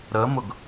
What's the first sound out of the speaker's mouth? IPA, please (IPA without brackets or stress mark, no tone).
ɾ